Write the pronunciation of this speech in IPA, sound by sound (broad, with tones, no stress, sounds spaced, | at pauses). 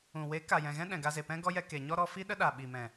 ũ˨ w e˨˦ k a˨ j ɛ̃˨ ɣ ɛ̃˦ ɗ ɛ̃˨ ɡ a˧ z e˨ p ɛ̃˦ ɡ ɔ˦ j ɛ˧ k e˨ ɲ ɔ˦ ɾ ɔ˧ f i˦ ɗ ə˦ ɗ a˨ ɓ i˨ m ɛ̃˨